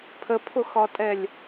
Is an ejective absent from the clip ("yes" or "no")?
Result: no